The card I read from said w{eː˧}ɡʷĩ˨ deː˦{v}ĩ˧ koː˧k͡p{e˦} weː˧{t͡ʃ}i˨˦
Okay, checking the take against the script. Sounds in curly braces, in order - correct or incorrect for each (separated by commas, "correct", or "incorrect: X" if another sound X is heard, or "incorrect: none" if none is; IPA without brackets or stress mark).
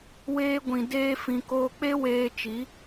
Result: correct, incorrect: f, correct, correct